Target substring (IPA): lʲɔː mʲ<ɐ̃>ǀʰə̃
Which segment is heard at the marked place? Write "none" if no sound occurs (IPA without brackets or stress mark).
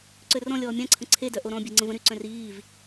ã